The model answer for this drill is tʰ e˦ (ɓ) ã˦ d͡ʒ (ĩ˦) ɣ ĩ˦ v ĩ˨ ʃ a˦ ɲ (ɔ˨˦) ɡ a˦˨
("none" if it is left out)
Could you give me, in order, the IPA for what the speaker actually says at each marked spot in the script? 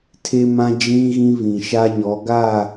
m, ĩ˦, ɔ˨˦

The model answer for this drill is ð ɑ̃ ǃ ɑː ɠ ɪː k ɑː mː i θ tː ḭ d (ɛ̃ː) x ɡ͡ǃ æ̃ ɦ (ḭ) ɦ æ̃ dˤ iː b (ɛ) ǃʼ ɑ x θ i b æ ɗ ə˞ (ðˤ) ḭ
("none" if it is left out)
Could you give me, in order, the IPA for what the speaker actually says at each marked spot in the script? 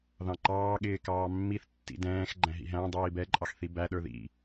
ɛ̃ː, ḭ, ɛ, ð

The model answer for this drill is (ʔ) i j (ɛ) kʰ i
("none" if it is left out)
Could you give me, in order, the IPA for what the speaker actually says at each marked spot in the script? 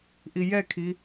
ʔ, ɛ

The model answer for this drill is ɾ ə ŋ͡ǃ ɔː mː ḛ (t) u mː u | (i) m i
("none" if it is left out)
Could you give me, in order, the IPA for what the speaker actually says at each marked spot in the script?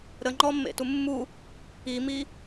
t, i

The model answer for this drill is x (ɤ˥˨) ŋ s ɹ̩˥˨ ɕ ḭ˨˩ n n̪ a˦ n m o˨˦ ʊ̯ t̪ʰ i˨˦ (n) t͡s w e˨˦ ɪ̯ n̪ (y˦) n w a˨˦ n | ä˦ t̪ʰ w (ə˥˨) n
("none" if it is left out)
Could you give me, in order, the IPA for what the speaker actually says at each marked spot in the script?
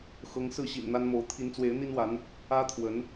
ɤ˦, n, i˦, ə˨˦

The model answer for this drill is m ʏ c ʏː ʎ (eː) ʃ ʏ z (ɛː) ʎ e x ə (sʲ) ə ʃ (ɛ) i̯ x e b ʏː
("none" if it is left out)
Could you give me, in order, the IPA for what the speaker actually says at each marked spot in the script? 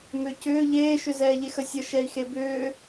eː, ɛː, sʲ, ɛ

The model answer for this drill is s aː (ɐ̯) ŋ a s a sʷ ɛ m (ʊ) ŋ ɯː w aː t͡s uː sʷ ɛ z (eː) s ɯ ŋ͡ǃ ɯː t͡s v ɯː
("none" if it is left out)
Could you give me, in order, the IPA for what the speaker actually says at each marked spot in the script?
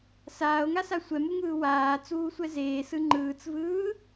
o̯, u, eː

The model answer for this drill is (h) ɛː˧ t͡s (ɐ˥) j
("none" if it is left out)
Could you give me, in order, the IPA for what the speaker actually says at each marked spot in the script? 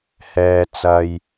h, ɐ˧

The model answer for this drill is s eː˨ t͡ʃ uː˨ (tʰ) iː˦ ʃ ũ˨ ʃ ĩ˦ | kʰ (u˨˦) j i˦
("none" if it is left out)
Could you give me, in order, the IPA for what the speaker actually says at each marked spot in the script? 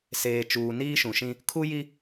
n, u˦

